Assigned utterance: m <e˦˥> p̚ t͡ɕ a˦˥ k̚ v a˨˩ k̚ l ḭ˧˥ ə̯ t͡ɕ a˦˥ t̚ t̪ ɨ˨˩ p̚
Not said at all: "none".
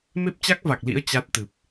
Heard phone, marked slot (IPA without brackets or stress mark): e˦˥